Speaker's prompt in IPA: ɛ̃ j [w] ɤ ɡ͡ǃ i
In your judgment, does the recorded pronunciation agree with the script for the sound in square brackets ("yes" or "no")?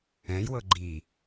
yes